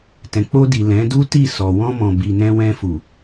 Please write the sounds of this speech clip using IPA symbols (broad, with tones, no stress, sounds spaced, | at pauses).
t ɛ̃˨ k͡p o˧ d i˨ l ɛ̃˨˦ d u˦ t i˦˨ s ɔ˨ w ɔ̃˧ m ɔ̃˨ b i˨ n ɛ̃˧ w ɛ̃˧ f u˨